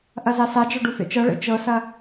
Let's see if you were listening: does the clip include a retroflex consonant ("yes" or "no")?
yes